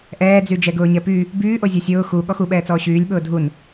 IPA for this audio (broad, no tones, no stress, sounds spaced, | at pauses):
ʔ ɛː d͡z y d͡ʒ ɛ ɡ ʊː ɲ ɛ p y | b yː ʔ o zʲ o sʲ ʊː x u ɠ ɔ x u ɓ ɛː t͡s ɔː ɕ yː lʲ ɓ ʊː dʱ u n